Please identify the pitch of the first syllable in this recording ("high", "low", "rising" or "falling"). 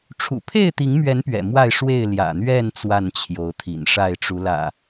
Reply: low